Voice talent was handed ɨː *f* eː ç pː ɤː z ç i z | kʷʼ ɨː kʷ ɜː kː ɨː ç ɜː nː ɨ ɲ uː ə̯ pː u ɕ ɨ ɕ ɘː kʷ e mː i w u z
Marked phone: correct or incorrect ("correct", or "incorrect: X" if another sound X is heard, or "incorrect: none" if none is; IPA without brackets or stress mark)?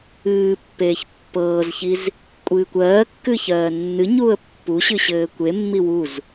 incorrect: pː